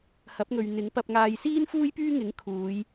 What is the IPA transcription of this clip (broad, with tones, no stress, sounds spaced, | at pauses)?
h ɐ˨˥ p̚ ŋ ɵ˨ ɥ n̪ ɪ˨˥ ŋ p ɐ˧ p̚ ŋ aː˧ j s iː˥ n f uː˥ j p yː˥ ŋ ɪ˨˥ ŋ kʰ uː˨˧ j